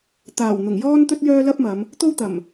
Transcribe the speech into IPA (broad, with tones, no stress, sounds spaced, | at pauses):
t̪ aː˨˩ w n̪ ʊ˨˩ ŋ j ɔː˥ n t̪ ɵ˥ t̚ j œː˥ l ɐ˥ p̚ m ɐ˨˧ m | t̪ o˥ w t̪ ɐ˨˩ m